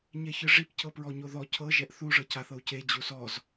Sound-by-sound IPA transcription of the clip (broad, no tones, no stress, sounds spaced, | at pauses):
ɲ ɛ ç ɯ ʐ i p c ɤ p ɹ ɔ ɲ o ð ɔ cʰ ɤ ʒ ɛ ʔ θ u ʐ ɤ c a θ ɤ u̯ c e d͡ʑ u s ɔ z